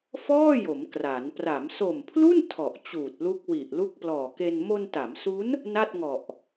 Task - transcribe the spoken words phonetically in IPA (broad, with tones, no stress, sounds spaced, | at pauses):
f ɔː˥˩ j o˩˦ m k r a˩˦ n p r a˩˦ m s o˨˩ m pʰ l u˥˩ n tʰ ɔ˨˩ ʔ t͡ɕ uː˨˩ t̚ l u˦˥ k̚ w i˨˩ ʔ l u˥˩ k̚ p l ɔː˨˩ k e˧ n m o˧ n t a˩˦ m s u˦˥ n | n a˥˩ t̚ ŋ ɔ˨˩ ʔ